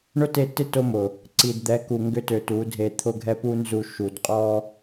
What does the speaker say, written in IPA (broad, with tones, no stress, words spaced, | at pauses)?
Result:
ɳʊ˦te˦˨tɪ˦ to˦mʊ˨ | ǀi˨dd̪ɛ˨˦ ku˨ ŋɡʏ˦tø˨ tu˨˦dʱe˧ t̪ʰʊ˦˨ɡʱɛ˦pu˦nzu˧ ʃu˨d qʼɔ˦